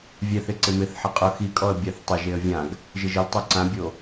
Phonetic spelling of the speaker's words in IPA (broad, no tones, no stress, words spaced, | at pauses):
vʲɛθɪ ǀɪmɪθħɪ qʼʊ xikʼɔə̯ bʲaθtˤɪʒeə̯ vʲãɡ | ʒɪʒɪltˤu ǀãbʲo